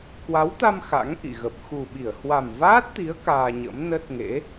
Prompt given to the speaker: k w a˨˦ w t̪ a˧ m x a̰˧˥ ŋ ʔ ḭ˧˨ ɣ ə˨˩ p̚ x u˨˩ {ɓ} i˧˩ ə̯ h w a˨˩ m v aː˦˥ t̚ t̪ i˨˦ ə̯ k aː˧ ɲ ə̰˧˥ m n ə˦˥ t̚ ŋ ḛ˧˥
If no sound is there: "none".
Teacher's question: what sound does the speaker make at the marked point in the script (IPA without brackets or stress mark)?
ɓ